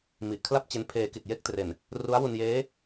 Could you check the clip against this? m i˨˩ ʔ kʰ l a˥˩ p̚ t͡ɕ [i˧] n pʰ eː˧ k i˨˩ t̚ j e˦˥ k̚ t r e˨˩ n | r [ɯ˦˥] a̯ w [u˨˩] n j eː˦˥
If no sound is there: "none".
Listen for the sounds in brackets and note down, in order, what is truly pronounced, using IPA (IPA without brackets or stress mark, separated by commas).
e˧, u˦˥, u˧